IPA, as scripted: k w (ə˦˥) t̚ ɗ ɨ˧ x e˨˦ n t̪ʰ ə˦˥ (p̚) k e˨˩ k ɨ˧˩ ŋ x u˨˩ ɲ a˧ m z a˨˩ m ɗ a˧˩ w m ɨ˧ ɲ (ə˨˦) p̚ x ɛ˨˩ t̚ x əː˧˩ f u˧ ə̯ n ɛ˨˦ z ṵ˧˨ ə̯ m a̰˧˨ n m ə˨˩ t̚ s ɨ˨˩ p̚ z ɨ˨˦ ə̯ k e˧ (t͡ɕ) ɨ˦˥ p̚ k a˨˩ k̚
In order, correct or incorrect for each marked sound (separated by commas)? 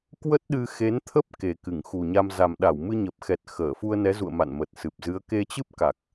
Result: correct, correct, incorrect, correct